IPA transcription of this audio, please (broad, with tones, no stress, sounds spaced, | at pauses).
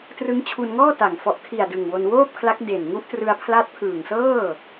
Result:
t r ɯ˦˥ ŋ t͡ɕʰ u˧ n ŋ ɔː˥˩ t a˨˩ ŋ f ɔ˨˩ ʔ kʰ i˨˩ a̯ d ɯ˨˩ ŋ w o˧ n w oː˥˩ p̚ kʰ l a˦˥ k̚ d e˨˩ n ŋ u˦˥ ʔ t r ɯ˧ a̯ pʰ l a˦˥ t̚ pʰ ɯː˨˩ ŋ s ɤː˥˩